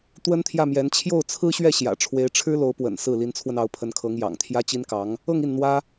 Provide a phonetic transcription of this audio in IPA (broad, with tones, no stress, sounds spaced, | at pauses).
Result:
t̪ w ə˥ n t̪ʰ j ä˥˩ m j ɛ˧˥ n t͡ɕʰ j o˥˩ ʊ̯ t͡sʰ ɹ̩˥ ɕ ɥ ɛ˥˩ ɕ j ä̰˨˩ ʈ͡ʂʰ w e˧˥ ɪ̯ ʈ͡ʂʰ ɻ̩˥ l o˧˥ ʊ̯ p w ə̰˨˩ n s ɹ̩˥˩ l i˧˥ n t͡sʰ w ə˧ n ɑ˧˥ ʊ̯ pʰ ə˧˥ n kʰ ɤ˧˥ ŋ j ɑ̰˨˩ ŋ t̪ʰ j ä˥ t͡ɕ i˥ n k ɑ˧˥ ŋ | ɤ˥˧ ŋ i˥˩ n n̪ w ä˥